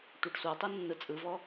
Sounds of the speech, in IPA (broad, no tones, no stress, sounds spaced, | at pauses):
tʷ a ɖ sʷ a tˤ ɯ nː ɯ t͡sʼ ɯ v ɔ